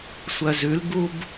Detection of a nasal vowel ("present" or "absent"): absent